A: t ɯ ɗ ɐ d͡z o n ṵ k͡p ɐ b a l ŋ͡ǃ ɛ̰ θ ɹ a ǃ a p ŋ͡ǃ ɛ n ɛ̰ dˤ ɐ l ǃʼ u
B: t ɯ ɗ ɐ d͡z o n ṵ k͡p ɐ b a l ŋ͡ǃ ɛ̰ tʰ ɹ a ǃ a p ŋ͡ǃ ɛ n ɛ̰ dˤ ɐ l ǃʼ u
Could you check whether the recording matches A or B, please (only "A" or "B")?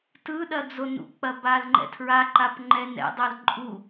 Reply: B